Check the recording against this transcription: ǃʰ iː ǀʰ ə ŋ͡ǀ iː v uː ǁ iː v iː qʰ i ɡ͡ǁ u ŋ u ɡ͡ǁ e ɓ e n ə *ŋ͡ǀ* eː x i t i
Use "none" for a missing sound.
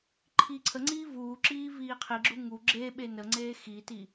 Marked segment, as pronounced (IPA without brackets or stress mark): ŋ͡ǀ